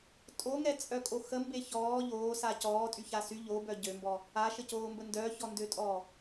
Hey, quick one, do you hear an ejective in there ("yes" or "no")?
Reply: yes